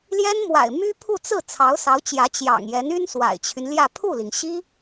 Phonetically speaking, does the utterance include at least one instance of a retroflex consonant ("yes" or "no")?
no